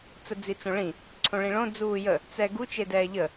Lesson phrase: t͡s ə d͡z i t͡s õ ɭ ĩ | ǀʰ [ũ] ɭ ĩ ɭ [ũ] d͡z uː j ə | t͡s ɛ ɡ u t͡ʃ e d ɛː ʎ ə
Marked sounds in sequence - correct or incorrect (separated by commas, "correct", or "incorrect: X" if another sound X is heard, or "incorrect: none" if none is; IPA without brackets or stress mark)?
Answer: incorrect: õ, incorrect: õ